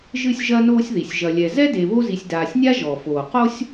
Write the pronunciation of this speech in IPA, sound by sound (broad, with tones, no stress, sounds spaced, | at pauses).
ʒ ɨ˦ sʲ ʒ ɐ˦ n oː˦ sʲ ð i˩ sʲ ʒ ɐ˨ lʲ ɛ˨ z ɛ˥ d e˨ β o˦ z i˨ sʲ d aː˨ sʲ nʲ a˥ ʒ ɔ˩ f oː˩ q o˦ sʲ